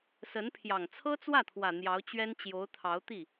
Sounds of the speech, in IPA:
sə˧˥npʰjɑ˨˩ŋ t͡sʰɤ˥t͡swä˥˩t̪ʰwä˨˩ n̪jɑ˧˥ʊ̯t͡ɕɥɛ˥n t͡ɕjo˧˥ʊ̯t̪ʰɑ˧˥ʊ̯ t̪i˥˩

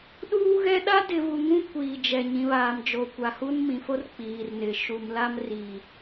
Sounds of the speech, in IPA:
ɗuː˦ɣɛ˦ ɗa˦dɪ˨vu˨ ŋũ˦kʷiː˨d͡ʒɛ˨ ɲĩ˨βaː˨md͡ʒo˨ kʷa˨hu˦nmĩ˨fo˦r k͡piː˨rnɪ˨ ʃu˨mla˦m riː˨

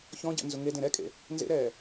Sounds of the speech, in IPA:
çɔ̃ɟɛ̰ nzʊŋedẽ ɾɛkʼḛ | nzḛɾɛː

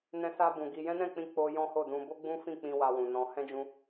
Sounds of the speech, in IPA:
nɛ̃˧sa˧ bũ˨ɡi˧ jɛ̃˦nɛ̃˦˨k͡pĩ˧ k͡po˧ jɔ̃˦ho˦˨dũ˧ bo˦ɡ͡bũ˦fĩ˦˨k͡pĩ˧ wa˧wũ˨nɔ̃˧ hɛ̃˦d͡ʒũ˦

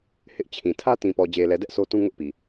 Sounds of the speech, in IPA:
hɪ˦ʔt͡ɕʰĩ˨ tʰä˦tĩ˨ pɔ˨d͡ʑe˨lɛ˨dɛ˦ʔ so˦tũ˦ŋʊ˦ʔpi˨

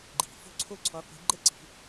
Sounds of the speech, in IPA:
ɡ͡ǃi̤˨˩˦ fo̤˥˧ǀʰo˥˧ǀʰɔ˨˦ qʷi̤˨˦ ɡ͡ǃə˥˧ǀi̤˨˩˦

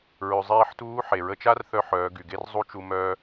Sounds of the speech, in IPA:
ɹø˩zˤeː˧ħtuː˧˥ ħe˩ɹə˧t͡ʃa˥r θœ˧˥ħœː˩˧ɡy˩ ɡe˥r zˤu˥t͡ʃu˧ mœː˧

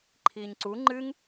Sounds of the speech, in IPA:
ǃʰiːɲǀu ŋ͡ǃɨŋ

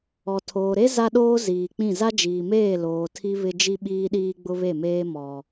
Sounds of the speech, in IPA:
ɔ˨ tʰoː˨ɾe˦ za˦ɗoː˦ ziː˨k͡pĩ˦˨ za˦d͡ʒiː˨meː˦˨ loː˨tʰi˦ βɪ˦ d͡ʒi˦ɓiː˦ɗiː˦ɡ͡bʊ˦ βe˦˨meː˦ mɔ˦

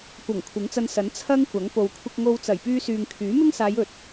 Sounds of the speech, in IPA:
kʷɐ˨˩ŋ kʷʰɪ˨˥ŋt͡sɐ˧nsɐ˨˥n t͡sʰɐ˥ŋkʷɐ˨˥ŋ po˨w kʷʰɪ˧k̚ŋo˧w t͡sɐ˨˩jpyː˧syː˨ŋ kʰyː˨˥mɪ˥ŋsaː˨˧j ɵ˨˥t̚

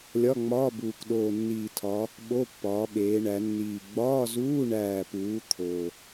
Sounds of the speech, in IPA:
lʲɒ˧˥˧ŋ͡mɒː˧˥˧buː˨˩k ɗoː˨˩ nːiː˨˩tʰɒ˩˧ | ɓo˧˥˧pːɒː˩˧ɓeː˩˧ɳæ˩˧ nːiː˨˩ ɡ͡bɒː˧˥˧zuː˧˥˧ɳæː˨˩puː˩˧ t̪ʰo˨˩

